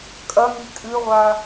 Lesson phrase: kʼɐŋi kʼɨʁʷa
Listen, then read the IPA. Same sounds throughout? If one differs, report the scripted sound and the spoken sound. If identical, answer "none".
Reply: none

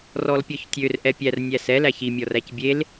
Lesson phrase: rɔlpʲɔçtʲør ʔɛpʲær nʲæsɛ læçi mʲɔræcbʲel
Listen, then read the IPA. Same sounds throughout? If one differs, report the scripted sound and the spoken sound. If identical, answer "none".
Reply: none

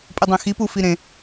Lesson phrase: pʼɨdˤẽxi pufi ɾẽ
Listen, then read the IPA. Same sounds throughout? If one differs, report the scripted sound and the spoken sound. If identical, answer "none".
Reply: none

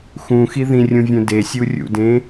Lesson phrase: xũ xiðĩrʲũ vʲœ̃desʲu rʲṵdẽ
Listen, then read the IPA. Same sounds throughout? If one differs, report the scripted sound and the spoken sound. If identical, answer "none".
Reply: none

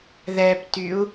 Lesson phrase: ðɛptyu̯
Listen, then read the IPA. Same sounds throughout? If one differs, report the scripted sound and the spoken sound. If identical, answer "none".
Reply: none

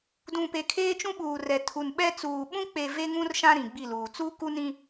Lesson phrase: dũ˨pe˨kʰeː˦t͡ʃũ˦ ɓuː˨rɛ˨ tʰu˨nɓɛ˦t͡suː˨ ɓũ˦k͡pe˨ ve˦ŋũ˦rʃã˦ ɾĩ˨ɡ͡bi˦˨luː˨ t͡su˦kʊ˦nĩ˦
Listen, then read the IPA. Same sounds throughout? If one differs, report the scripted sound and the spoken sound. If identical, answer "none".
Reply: ʊ˦ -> u˦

